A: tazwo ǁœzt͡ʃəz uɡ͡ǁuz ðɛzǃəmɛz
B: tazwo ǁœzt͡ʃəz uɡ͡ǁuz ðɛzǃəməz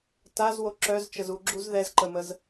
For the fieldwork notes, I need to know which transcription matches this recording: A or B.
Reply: B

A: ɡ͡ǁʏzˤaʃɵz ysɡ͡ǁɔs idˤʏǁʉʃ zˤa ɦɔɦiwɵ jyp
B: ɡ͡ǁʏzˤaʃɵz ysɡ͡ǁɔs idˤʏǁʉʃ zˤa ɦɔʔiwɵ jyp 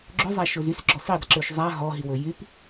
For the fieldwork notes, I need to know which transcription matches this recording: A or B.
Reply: A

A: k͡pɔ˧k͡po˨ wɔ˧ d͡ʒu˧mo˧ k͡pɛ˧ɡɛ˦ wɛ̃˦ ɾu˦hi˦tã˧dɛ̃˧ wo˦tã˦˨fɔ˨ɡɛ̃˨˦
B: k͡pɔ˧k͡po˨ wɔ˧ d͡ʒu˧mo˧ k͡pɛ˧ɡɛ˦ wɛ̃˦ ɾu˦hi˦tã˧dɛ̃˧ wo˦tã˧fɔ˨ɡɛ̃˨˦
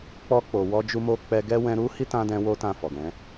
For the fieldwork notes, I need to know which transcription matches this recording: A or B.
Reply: A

